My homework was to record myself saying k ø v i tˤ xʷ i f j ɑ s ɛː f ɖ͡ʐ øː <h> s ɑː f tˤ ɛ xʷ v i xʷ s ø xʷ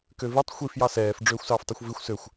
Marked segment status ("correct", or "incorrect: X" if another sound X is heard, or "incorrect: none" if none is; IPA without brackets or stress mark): incorrect: xʷ